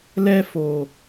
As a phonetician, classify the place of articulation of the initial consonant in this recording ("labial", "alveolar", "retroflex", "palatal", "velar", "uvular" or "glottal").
alveolar